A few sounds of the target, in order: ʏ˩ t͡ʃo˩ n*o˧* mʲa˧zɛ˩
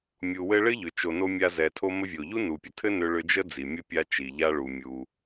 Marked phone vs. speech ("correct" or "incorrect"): correct